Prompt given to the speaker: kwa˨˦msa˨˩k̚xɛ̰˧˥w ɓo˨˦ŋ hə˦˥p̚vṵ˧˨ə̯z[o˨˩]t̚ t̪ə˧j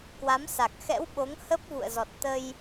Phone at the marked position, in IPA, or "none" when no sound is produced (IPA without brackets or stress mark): ɔ˨˩